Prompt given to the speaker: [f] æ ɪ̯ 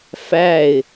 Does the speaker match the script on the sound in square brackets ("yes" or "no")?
yes